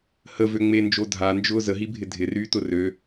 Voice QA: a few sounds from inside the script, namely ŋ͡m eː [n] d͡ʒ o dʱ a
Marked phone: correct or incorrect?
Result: correct